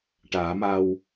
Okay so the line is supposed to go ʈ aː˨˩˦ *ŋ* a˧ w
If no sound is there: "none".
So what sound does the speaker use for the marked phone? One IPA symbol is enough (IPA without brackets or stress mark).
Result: m